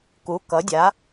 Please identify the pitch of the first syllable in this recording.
rising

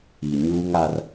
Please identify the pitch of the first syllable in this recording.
low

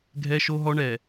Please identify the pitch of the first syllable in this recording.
high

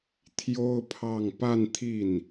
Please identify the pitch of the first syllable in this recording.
high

